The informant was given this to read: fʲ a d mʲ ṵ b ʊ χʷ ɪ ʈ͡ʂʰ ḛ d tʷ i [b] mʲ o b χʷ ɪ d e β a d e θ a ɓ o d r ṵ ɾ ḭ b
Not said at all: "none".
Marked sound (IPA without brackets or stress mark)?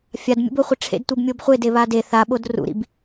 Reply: b